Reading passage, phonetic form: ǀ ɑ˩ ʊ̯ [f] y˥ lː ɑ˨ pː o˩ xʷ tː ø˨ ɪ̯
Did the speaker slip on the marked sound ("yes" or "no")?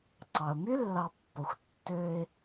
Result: yes